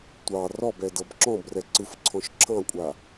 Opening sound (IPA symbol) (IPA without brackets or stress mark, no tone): tʷ